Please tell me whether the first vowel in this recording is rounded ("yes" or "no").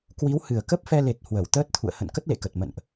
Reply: no